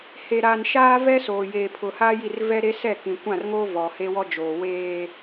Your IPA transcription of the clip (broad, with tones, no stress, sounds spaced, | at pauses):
h e˨ ɾ aː˨ n ʃ aː˦ v ɛ˦ s oː˨ j eː˨ pʰ ʊ˨ h aː˦ j i˦˨ r v ɛ˦ ɾ e˦ s ɛ˦˨ k ĩ˨ kʷ ã˦˨ r ŋ oː˦ v ɔ˨ h e˦ w ɔ˦ d͡ʒ oː˨ w eː˦